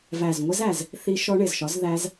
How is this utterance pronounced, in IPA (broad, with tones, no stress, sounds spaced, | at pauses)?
v æ˨˩ z ŋʷ ɪ˦˥ z æ˨˩ z | θ i˦˥ ʃ ɔ˦˥ ɳ ɪ˨˩ z ʃ ɒ˨˥ z ð æ˦˥ z